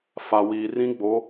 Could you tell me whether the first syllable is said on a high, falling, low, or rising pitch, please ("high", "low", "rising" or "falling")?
low